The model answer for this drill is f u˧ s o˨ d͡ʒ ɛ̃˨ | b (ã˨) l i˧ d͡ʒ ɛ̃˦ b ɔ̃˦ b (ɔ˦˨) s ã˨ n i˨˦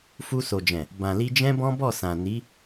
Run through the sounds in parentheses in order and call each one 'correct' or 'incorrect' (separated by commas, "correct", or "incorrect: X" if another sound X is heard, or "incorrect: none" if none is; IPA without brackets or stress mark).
correct, correct